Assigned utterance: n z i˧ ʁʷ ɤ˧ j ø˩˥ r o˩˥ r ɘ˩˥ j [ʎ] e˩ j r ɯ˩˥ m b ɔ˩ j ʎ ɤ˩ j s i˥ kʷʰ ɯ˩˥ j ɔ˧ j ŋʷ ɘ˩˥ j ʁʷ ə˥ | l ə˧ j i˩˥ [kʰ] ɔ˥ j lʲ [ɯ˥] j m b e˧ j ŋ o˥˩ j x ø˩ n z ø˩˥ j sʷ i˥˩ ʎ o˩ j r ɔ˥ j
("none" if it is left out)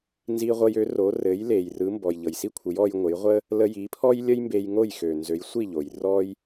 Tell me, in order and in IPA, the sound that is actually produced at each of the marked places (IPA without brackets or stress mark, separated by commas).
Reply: l, pʰ, ə˥